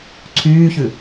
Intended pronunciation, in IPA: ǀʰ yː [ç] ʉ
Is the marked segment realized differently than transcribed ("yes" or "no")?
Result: no